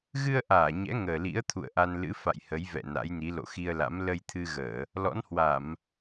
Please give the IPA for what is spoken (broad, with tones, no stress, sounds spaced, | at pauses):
ɣ ɨ˧ ə̯ ʔ aː˧˩ ɲ ɛ̰˧˥ ŋ əː˨˩ l ḭ˧˥ ə̯ t̪ʰ ṵ˧˨ ə̯ ʔ a˧ n l ɨ̰˧˥ f a̰˧˨ j h ə˨˦ j v ɛ̰˧˨ n a̰˧˥ j n i˨˦ l o̰˧˨ x i˧ ə̯ l a̰˧˥ m l ə˧ j t̪ʰ ɨ˧ ɣ əː˧˩˨ | l ɔ̰˧˥ n h w a˧˩˨ m